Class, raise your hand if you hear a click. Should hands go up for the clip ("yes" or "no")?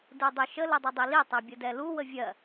no